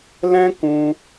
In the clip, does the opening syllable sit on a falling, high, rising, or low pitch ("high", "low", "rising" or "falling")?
high